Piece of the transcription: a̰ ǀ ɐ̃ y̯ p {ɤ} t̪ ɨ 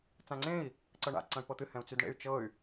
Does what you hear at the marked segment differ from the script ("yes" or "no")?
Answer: no